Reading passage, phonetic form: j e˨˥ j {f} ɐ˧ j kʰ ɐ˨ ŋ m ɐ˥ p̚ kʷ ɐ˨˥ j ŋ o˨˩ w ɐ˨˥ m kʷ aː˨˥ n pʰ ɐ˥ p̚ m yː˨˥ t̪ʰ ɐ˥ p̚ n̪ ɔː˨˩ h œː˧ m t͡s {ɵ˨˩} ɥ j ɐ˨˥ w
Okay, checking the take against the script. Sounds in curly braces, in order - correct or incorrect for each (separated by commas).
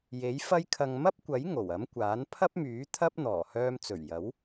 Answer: correct, correct